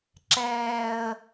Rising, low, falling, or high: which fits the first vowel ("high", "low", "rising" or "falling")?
low